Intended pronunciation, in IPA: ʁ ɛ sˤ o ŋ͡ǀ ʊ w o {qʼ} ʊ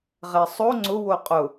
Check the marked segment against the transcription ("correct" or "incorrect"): correct